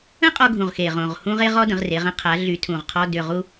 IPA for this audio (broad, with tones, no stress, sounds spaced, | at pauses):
ə̃˥ qʼ ɔ˧ ɡʱ ũ˨˩ ʁ x e˨˩ ʁ õ˨˩ ʁ h ũ˥ ʁ e˥ ʁ ɔ˥ d ə̃˩˧ ʁ r e˩˧ ʁ ə̃˥ qʰ a˩˧ ɮ y˨˥ tʰ ũ˨˩ ʁ qʰ ɔ˧˥˧ d ʏ˨˩ ʁ u˧